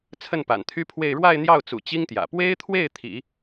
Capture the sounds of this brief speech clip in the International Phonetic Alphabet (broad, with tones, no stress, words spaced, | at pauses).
t͡sʰə˥˩npa̰˨˩nt̪ʰy˥pʰwe˥˧ɪ̯ ɻwa˥˧ɪ̯n̪jɑ˥˩ʊ̯t͡sṵ˨˩ t͡ɕi˥ŋt̪jä̰˨˩ pwe˥ɪ̯t̪ʰwe˥˩ɪ̯ t̪ʰḭ˨˩˦